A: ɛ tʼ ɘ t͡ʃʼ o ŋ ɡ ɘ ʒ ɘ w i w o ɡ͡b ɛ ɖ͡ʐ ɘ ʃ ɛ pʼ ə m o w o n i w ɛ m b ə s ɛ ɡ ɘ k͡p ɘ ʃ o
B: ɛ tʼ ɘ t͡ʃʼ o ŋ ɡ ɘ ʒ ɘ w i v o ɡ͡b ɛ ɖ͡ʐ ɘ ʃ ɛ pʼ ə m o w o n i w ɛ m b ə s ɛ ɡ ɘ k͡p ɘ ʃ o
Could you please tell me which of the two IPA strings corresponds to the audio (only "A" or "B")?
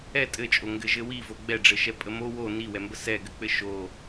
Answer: B